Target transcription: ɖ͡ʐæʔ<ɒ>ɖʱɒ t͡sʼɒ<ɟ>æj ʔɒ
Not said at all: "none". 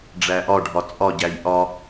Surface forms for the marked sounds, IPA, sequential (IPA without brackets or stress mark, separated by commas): ɒ, ɟ